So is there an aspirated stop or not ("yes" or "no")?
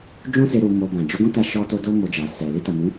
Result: no